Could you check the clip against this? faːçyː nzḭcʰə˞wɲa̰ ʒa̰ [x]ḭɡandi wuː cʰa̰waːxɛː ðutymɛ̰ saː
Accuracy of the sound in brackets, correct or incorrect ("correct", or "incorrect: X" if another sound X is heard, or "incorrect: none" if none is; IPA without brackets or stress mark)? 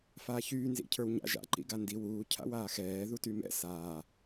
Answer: incorrect: ǃ